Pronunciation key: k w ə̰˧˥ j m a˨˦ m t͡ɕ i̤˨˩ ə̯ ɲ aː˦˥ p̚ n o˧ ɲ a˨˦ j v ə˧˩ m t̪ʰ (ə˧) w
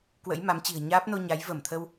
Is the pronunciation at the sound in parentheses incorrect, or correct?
correct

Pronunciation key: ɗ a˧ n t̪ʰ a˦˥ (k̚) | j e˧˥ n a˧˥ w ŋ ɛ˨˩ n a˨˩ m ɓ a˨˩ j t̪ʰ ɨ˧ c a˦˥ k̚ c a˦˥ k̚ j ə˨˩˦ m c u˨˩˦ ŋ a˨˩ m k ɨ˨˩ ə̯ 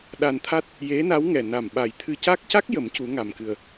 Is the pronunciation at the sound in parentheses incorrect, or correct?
incorrect: t̚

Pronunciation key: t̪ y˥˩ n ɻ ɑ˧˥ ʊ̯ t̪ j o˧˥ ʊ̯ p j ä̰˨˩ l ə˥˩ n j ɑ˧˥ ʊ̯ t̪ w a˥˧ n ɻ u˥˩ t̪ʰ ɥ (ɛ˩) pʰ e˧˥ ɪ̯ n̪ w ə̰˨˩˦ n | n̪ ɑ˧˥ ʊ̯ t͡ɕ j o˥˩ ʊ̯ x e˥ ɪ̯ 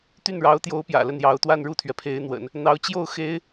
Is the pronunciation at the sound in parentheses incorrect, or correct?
correct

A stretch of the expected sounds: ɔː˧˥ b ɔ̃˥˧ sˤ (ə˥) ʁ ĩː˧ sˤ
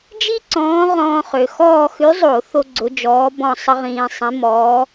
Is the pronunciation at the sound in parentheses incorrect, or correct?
correct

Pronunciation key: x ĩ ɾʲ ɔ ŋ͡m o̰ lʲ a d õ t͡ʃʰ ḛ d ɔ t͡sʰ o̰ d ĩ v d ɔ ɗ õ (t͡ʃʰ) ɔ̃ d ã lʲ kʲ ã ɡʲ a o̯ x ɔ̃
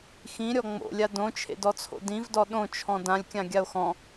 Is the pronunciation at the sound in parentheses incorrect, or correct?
correct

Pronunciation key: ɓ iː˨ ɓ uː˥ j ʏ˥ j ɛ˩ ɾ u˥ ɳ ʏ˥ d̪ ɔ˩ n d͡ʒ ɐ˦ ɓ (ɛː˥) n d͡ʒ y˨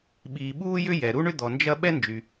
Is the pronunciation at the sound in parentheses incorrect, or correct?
incorrect: ɛ˥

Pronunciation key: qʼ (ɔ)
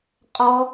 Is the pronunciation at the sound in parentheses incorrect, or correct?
correct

